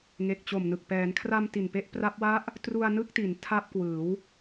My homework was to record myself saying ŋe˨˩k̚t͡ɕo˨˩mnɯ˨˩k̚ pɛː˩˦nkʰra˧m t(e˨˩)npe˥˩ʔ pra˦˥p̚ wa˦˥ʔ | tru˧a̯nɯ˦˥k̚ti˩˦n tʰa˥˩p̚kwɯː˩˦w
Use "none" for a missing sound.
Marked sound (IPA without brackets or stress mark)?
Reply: i˨˩